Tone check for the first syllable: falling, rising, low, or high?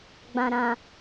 low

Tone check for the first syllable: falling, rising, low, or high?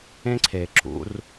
high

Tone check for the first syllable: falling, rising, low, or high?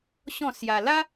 falling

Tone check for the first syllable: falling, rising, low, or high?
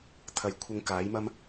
low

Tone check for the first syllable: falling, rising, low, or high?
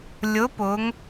rising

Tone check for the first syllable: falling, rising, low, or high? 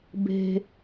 high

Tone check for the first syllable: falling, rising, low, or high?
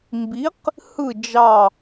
rising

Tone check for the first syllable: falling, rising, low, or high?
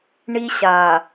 high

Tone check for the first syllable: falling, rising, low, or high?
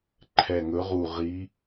low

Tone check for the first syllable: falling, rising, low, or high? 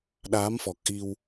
rising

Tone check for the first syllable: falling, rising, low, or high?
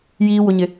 high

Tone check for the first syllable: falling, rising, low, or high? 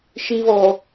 high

